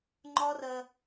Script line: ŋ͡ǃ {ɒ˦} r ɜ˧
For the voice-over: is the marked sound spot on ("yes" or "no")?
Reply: yes